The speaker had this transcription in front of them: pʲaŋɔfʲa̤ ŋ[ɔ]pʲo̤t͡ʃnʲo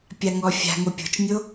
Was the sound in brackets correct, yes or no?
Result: no